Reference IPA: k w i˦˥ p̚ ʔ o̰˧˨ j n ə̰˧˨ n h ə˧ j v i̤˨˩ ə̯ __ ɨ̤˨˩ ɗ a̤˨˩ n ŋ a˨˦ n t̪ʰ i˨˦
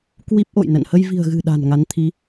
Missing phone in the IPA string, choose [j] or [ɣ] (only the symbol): ɣ